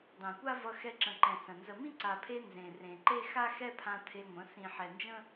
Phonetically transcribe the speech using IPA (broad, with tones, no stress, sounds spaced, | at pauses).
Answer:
dˤ ẽ˨ kʷ a˦ v ʌ˧ x ɛ˧ ǁ ə̃˨ ǃ ɛ̃˨ s ə̃˨ n z ə˨ m ĩ˦ ǀ a˨ pʰ e˧ n z ẽ˨ r ẽ˨ ǃ e˦ x a˦ x ɛ˦ pʰ ã˧ t̪ʰ e˧ ŋʷ ə̃˨˦ s ĩ˨ ħ ɛ˨ n d͡ʒ ə̃˦